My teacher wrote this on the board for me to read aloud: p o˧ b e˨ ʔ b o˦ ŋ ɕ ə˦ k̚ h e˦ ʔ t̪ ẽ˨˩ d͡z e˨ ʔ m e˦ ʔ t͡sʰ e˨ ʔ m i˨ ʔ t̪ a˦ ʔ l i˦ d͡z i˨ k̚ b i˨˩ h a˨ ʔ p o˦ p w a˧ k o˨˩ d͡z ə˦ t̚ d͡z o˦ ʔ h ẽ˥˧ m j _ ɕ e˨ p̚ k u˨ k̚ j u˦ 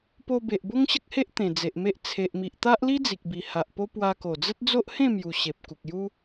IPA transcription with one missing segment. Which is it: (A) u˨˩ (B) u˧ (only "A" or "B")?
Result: A